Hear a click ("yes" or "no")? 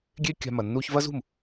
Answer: no